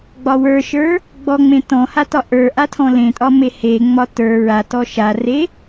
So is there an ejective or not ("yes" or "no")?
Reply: yes